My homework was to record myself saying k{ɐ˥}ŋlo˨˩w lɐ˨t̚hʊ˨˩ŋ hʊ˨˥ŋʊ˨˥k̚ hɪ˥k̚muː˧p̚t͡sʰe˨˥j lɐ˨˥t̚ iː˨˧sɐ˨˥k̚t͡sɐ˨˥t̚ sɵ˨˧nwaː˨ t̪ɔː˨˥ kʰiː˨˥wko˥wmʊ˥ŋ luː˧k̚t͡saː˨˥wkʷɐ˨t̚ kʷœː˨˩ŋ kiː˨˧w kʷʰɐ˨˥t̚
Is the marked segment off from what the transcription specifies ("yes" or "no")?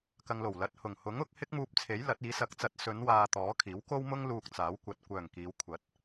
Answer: yes